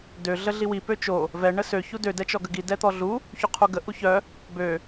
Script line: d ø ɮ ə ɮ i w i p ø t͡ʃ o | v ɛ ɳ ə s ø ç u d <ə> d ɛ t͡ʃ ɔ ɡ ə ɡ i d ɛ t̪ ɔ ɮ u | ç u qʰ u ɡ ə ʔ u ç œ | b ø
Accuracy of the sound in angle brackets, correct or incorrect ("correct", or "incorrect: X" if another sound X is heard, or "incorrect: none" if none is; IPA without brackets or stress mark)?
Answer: incorrect: ø